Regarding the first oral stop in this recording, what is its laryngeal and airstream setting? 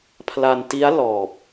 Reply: aspirated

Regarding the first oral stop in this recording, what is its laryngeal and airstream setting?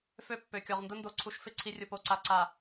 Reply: plain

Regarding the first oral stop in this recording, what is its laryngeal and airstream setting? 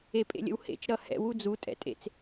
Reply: ejective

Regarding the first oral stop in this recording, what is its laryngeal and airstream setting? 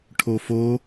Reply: aspirated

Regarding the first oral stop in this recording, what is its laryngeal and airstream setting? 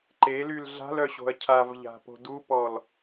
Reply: click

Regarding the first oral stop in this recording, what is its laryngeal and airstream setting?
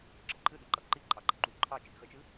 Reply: click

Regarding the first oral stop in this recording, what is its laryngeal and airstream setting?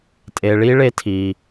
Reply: ejective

